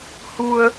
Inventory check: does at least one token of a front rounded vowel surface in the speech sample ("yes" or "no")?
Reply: no